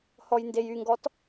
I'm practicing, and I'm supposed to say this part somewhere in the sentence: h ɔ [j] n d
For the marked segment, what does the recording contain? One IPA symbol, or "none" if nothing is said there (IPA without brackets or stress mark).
j